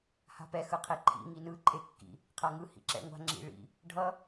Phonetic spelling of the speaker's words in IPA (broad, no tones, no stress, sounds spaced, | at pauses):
h a̤ p ɛ x ɯ qʰ e ǃʰ ḭ ŋ i n ɯ ǃʼ e kː ḭ | qʰ a ŋ ɯ h ḭ ǁ ɛ̰ ŋʷ a̤ ŋ͡ǁ ḭ ɭ ḭ | ɖʱ ʌ